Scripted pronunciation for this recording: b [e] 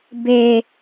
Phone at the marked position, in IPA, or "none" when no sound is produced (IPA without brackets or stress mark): e